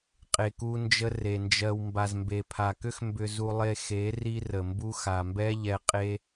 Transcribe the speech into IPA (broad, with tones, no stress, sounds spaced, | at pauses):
qʼ e˨ k u˧ n d͡ʒ ə˧ r e˨ n d͡ʒ ɜ˧ w m b a˨ z m b e˨ pʰ a˨ k ʏ˦ x m b ʏ˧ z u˧ lˠ e˧ x e˨˦ r i˦ r ə˨ m b u˦ x a˨ m b ɛ˦ ʎ ɛ˧ qʼ e˦